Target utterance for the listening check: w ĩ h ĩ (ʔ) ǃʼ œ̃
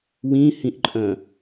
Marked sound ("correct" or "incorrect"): correct